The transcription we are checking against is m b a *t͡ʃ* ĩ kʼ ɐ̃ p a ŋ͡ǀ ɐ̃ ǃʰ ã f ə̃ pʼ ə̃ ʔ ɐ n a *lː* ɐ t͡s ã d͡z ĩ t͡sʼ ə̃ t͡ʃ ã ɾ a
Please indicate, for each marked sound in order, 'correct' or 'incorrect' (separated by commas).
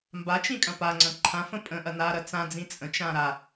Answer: correct, incorrect